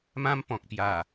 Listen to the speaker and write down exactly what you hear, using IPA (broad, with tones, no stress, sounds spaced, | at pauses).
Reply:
m ã˧ m p ɔ̃˨ k̚ p j a˨˩